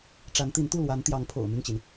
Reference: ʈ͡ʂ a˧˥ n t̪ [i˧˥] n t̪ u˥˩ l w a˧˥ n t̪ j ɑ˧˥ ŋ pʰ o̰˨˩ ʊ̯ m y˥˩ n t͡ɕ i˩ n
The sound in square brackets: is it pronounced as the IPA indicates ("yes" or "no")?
yes